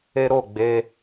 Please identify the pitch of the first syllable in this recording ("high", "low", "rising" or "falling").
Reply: high